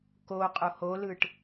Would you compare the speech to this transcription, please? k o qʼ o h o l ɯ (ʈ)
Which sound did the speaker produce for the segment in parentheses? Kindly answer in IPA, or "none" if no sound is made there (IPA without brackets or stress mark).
ʈ